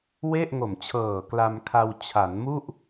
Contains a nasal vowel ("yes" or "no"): no